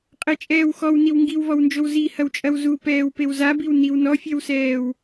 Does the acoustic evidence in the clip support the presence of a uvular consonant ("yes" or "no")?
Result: yes